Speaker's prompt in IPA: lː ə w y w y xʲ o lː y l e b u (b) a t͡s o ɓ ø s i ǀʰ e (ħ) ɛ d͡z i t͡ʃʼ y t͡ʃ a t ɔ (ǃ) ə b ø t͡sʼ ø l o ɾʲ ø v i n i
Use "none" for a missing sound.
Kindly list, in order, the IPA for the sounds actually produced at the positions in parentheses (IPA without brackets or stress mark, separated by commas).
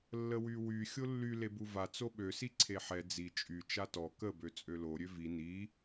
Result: v, ħ, k